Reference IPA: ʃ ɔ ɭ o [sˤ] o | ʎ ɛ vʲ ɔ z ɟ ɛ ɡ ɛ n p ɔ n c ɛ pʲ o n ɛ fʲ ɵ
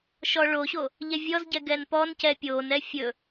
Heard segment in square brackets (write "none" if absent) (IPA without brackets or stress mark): ɕ